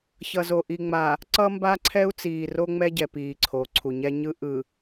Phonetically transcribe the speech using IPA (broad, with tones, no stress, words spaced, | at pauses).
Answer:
çʌ˨zo˨ʔi˨ŋ͡ma˨ | ǀʌ˦mba˦ǀʰɛ˦u̯ t͡siː˨ro˦ŋ͡mɛ˦ɟɛ˨ piː˨ǀʰo˨˦ǀʰu˨ ɲɛ˦ɲɯ˦ ʔɯ˨